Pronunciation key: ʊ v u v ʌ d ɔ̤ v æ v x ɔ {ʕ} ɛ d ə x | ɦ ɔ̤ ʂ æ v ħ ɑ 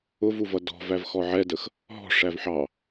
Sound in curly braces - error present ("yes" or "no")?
no